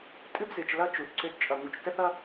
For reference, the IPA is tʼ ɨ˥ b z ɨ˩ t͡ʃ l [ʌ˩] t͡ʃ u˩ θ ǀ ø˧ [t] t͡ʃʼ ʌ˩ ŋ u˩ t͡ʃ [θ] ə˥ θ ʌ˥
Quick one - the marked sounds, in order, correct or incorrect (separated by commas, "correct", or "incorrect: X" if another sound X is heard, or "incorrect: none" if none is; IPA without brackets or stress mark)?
incorrect: ʌ˧, correct, incorrect: t